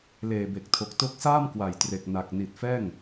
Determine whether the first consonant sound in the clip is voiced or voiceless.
voiced